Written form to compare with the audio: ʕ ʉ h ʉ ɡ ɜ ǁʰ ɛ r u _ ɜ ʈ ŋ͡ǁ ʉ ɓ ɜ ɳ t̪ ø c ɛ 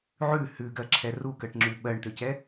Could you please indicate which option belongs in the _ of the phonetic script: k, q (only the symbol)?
k